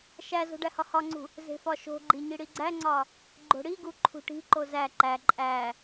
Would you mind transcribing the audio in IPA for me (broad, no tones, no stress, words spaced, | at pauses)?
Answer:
ʃæzo̤ ɖæhɒhɒŋ͡ǀṳ | ze̤fɒʃo̤ɡ͡ǃi ɲiɽiɡ͡ǀæŋ͡ǀɒ | ɡ͡ǃo̤ɽiɡu ǃʰṳʈi̤ǃo zæ ǃæ ǃʼæ